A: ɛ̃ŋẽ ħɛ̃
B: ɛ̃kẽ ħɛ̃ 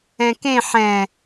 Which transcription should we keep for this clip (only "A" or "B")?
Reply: B